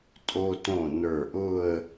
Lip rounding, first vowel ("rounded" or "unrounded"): rounded